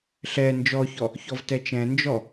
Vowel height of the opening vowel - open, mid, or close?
mid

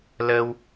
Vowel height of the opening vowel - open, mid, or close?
mid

